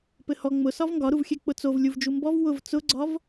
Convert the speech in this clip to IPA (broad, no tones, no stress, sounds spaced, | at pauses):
p ɘ h ɔ ŋ͡m ʊ s ɒ v ŋ ɡ ɒ ɾ u v xʲ ɛ k͡p ʊ t͡s o v lʲ u v d͡ʒ u m b ɔ v w ʊ v t͡s ʊ ɡ͡ǀ ɒ v